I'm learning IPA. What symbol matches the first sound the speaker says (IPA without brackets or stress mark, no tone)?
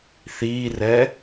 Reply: θ